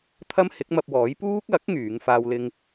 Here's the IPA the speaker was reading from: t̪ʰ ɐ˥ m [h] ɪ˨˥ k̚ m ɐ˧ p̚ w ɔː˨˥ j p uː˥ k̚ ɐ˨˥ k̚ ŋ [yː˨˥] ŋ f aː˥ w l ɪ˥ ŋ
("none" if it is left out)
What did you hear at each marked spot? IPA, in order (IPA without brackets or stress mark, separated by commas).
h, yː˨˥